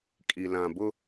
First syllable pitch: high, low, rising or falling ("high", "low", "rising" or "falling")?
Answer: low